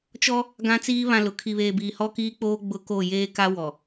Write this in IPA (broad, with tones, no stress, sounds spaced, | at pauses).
t͡ʃ ɔ˦ | ɡ ã˦ t͡s iː˦ β ã˦˨ l ʊ˨ kʰ i˨ β eː˨ b iː˨ h ɔ˦ k iː˦ k͡p oː˦ ɡ͡b ʊ˦ k o˦˨ j eː˦ k a˦ w ɔ˨